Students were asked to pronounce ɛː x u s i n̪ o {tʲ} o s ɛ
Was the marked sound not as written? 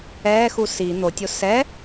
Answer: no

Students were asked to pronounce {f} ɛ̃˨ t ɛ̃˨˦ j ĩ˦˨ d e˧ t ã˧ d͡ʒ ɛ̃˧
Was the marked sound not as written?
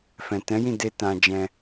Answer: no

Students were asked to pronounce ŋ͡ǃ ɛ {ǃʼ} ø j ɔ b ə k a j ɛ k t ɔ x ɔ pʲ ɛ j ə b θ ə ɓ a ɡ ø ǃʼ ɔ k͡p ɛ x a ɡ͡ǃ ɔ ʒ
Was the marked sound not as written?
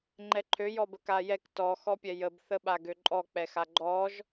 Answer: yes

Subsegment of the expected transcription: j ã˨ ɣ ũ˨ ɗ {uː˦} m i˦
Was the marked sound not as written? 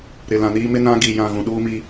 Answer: no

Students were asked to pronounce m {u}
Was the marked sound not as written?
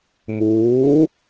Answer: yes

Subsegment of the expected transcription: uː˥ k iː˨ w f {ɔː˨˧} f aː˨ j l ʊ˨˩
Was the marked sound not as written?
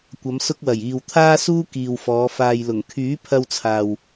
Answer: no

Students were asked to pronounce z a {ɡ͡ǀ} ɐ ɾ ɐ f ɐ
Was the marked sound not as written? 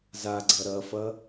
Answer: no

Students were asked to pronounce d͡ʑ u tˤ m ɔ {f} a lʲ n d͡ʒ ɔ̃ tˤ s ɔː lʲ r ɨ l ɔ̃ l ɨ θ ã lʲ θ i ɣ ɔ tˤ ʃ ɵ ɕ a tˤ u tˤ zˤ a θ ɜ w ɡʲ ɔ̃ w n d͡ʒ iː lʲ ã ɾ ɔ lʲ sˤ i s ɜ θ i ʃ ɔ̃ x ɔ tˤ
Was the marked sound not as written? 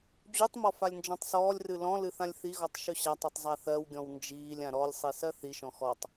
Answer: no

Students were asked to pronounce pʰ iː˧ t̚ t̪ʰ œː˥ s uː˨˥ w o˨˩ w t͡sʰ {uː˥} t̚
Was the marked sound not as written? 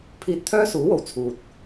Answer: yes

